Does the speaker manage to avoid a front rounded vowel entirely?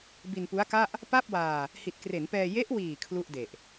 yes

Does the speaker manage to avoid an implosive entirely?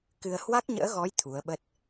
no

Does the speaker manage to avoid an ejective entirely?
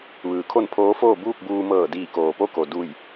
yes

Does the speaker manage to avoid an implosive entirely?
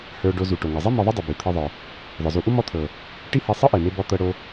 yes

